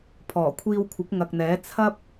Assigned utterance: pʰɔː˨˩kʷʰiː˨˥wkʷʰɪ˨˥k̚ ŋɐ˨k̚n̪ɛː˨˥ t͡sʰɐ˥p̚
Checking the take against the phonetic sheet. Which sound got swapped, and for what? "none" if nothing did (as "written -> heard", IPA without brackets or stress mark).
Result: iː˨˥ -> iː˧